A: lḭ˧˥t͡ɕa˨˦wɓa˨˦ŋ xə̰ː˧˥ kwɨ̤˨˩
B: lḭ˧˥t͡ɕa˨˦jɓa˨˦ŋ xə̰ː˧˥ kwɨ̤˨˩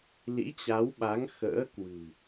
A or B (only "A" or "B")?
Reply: A